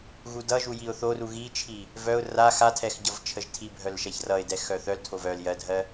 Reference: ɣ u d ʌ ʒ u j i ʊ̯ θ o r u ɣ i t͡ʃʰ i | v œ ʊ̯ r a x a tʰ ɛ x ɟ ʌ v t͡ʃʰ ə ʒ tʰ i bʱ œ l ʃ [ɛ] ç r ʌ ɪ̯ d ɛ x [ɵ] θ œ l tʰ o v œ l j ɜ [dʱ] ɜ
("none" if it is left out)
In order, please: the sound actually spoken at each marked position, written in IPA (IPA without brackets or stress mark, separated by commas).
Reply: ɛ, œ, dʱ